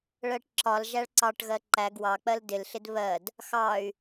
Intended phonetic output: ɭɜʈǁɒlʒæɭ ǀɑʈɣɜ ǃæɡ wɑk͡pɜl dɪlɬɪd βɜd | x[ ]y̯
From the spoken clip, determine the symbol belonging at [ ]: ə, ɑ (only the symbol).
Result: ɑ